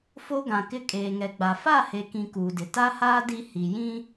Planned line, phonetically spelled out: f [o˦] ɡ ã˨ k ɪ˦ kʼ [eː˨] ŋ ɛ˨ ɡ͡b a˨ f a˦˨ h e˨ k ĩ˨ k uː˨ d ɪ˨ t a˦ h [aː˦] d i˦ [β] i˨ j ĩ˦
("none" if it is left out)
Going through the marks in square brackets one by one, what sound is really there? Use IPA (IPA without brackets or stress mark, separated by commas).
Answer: o˦, eː˨, aː˦, h